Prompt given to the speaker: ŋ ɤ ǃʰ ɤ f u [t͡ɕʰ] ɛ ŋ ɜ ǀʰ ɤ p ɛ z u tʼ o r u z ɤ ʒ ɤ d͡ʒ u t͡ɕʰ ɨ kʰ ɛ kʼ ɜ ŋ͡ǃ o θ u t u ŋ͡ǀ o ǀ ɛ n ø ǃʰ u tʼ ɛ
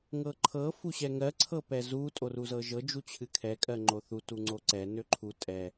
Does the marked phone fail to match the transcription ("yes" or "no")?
yes